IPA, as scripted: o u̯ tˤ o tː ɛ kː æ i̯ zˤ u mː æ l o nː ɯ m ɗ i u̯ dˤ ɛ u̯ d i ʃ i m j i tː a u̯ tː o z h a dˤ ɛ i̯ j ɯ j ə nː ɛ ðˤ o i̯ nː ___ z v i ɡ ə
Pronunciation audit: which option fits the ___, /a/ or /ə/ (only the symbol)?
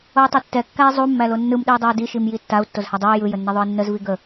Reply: ə